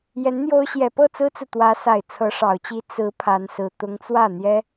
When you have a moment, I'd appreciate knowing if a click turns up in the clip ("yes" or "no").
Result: no